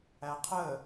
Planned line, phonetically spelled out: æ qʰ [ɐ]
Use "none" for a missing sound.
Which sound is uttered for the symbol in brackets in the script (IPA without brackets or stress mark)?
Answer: ə